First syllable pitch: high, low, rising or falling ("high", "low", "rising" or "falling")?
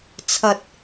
low